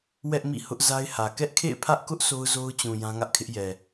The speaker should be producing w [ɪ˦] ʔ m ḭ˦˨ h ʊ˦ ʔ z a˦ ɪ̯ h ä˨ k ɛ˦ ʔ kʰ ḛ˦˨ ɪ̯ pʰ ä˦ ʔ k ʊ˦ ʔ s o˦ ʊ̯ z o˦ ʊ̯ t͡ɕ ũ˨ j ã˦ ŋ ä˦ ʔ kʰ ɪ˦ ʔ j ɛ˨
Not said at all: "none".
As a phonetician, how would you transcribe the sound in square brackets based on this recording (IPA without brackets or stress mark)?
ɛ˦